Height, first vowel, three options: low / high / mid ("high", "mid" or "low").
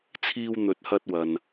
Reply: high